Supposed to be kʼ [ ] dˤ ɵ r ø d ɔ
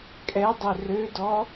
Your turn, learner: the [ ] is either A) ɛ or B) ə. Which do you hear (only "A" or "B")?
A